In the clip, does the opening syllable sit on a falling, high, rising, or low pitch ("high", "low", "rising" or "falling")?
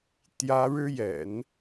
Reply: high